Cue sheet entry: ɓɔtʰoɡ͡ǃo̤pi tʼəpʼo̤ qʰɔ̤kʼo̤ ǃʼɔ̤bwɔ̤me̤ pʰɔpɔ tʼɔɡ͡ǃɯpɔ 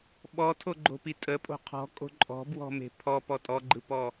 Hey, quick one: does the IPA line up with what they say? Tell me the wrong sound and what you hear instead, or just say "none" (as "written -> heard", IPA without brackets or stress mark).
none